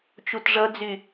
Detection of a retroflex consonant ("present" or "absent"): present